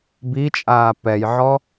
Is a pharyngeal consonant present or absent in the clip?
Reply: present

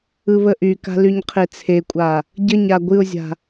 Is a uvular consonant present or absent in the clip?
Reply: present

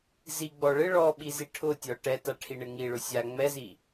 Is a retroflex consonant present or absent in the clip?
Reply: present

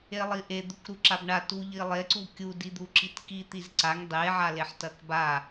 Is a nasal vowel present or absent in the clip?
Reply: absent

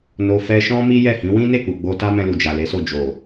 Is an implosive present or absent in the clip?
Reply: absent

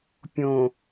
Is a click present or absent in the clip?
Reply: absent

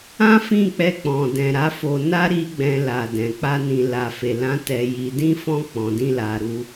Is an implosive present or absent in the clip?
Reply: absent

